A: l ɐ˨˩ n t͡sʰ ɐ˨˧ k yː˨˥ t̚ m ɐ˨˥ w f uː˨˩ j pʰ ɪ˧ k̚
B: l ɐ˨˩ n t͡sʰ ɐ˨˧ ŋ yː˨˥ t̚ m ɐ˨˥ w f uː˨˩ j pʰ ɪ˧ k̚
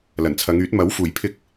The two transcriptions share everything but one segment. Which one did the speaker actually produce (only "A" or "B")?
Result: B